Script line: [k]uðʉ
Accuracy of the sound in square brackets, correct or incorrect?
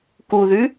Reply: correct